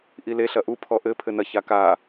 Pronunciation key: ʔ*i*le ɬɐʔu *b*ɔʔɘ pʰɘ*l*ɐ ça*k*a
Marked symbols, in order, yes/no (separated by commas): yes, no, no, yes